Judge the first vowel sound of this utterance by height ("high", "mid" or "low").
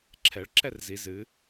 mid